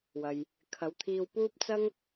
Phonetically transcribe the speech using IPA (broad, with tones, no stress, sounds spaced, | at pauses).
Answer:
w ɐ˧ j | kʰ ɐ˨˧ w t̪ʰ iː˧ w p uː˥ p̚ t͡s ɐ˥ ŋ